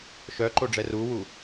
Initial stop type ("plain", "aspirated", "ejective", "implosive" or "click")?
click